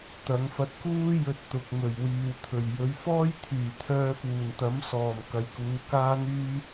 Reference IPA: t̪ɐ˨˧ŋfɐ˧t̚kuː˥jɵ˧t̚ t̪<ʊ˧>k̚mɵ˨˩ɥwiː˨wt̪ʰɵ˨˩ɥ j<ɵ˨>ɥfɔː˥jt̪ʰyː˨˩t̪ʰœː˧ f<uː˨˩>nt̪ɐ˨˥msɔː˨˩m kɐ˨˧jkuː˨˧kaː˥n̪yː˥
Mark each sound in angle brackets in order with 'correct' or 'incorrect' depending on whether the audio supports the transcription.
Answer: incorrect, incorrect, correct

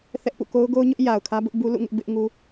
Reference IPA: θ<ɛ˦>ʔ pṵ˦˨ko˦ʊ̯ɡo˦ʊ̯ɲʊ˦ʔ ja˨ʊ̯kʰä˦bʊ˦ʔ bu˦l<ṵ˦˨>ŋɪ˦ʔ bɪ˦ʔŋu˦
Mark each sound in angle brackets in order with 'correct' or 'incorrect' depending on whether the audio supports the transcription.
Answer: correct, correct

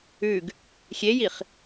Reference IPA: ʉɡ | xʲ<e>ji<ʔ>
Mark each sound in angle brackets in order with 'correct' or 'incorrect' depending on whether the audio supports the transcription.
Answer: correct, incorrect

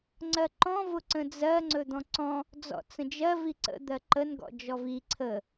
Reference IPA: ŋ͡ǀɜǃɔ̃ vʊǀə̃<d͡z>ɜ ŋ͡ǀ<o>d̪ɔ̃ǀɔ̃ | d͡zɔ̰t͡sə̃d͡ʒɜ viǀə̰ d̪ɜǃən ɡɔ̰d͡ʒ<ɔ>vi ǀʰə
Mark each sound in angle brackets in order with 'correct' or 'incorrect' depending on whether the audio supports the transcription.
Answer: correct, incorrect, correct

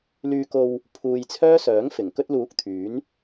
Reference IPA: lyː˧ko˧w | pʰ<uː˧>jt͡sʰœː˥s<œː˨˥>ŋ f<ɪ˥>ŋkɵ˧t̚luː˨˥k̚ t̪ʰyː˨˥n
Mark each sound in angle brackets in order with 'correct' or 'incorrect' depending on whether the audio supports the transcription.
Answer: correct, correct, incorrect

